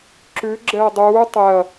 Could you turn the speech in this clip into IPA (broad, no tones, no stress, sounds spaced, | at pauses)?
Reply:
ǁ ʉ ɡ͡ǁ ɛ ɐ̯ dˤ uː tˤ ɛ ɐ̯